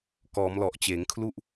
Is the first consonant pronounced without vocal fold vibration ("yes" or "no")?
yes